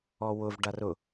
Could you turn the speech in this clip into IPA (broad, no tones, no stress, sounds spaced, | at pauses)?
ɔ w ʊ v ɖ a r ʊ